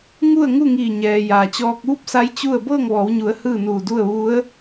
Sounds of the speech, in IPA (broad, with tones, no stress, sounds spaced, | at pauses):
ŋ u˥˨ ə̯ ŋ u˥˨ ŋ iː˧˩ ɲ ɛː˩ j aː˩ t͡ɕ ɔː˧ k̚ ʋ u˥˨ p̚ s a˧˥ j t͡ɕ u˥˨ ə̯ b ɤː˥˨ ŋ ʋ ɔː˩˧ w ɲ u˩˧ ə̯ h ɯː˥˨ n uː˧˩ d u˥˨ ə̯ ʋ u˧˥ ə̯